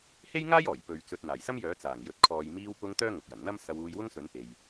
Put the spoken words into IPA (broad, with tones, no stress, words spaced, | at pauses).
he˥jŋaː˥j ɔː˨˩j pɵ˨˧ɥ t͡sɵ˨t̚ n̪aː˨˩jsɐ˥mjœː˨˥ t͡saː˨˩ŋjɵ˨˥t̚ kʰɔː˨˧j miː˧wpʊ˧ŋ t̪œː˥ŋʊ˨k̚jɐ˨˩n n̪ɐ˥msɐ˧wuː˧j wʊ˥ŋsɵ˨˥npe˨j